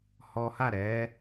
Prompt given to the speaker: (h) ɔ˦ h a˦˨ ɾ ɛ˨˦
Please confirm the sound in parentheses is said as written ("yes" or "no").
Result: yes